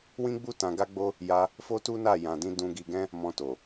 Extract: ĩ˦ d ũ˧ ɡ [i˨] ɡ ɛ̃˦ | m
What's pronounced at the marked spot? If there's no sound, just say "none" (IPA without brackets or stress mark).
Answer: i˧